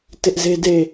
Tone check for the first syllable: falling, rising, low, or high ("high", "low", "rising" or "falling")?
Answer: high